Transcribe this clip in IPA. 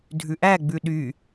dʱʉʔæ ɡ͡bʉɗy

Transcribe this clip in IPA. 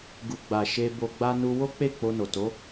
ɡu˨ɡ͡ba˨ ʃe˧bo˧ɡ͡ba˦ nu˧wo˦k͡pe˦˨ k͡po˧no˨to˨˦

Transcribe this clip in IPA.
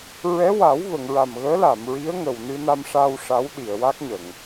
ɹɛ˧˥wa˨˩˦wvə˨˩˨ŋɹa˨˩m ɣəː˧˥la˨˩˨mɹi˧˥ə̯ ŋə˨˩wnɨ˧na˧m ʂa˧w ʂa˧˥wɗi˨˩˨ə̯wa˦˥k̚ɲə˨˩˨ŋ

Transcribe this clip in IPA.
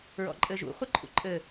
ɹɔ̰ǃʼɘʒṵ χʷɘǃʰṵǃʼɘ

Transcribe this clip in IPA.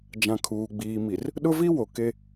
d͡ʒã˨kʰuː˨ɡ͡biː˨mi˨r | ɗʊ˦vi˦ wo˨ke˦

